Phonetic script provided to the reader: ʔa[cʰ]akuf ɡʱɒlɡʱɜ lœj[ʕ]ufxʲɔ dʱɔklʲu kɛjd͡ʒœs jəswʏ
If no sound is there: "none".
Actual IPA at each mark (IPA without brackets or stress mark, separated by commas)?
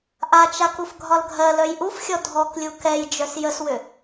t͡ʃ, ʔ